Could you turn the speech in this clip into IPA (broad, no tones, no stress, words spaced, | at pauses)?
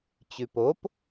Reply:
t͡ɕʉpop